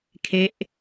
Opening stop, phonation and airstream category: aspirated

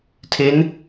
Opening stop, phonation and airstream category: aspirated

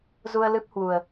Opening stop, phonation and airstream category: plain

